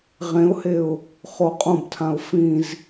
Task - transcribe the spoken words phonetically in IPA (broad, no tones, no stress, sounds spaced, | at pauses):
ʁ ẽ ʊ̯ h e ʊ̯ | χ o qʼ õ b tʰ ã ʊ̯ f ĩ z